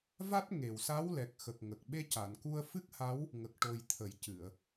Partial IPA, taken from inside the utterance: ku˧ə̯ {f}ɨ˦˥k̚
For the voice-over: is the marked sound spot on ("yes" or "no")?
yes